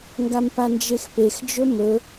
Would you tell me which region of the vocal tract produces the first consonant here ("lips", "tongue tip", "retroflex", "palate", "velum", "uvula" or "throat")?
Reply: velum